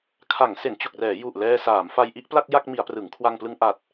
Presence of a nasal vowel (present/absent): absent